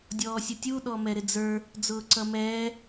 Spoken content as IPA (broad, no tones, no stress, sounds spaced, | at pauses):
dʲ ɔː sʲ ʊ tʲ u ɗ ɔ m ɛ ɾ ɪ d͡z ə˞ | d͡z ʊː ǀ ʌ m ɛː